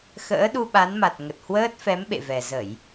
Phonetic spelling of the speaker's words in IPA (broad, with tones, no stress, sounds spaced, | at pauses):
x ə̰ː˧˥ ɗ u˧ ɓ a˨˦ n m a˨˩ t̚ ŋ ə˨˩ t̚ h w əː˦˥ t̚ f ɛ˨˦ m ɓ ḛ˧˨ v ɛ˨˩ z ə˧˩˨ j